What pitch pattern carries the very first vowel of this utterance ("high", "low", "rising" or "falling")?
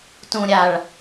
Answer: low